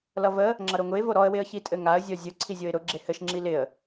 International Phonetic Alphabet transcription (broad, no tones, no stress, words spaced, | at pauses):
lʌvə | ŋ͡ǁʌɾoŋʊɪ̯ voɾɔə̯ wɪə̯çitʼɘŋaə̯ zʲɔzʲʊ ǀʰizʲoɪ̯ɾʊ ɡ͡ǁehɘʃ ŋ͡ǁilɪə̯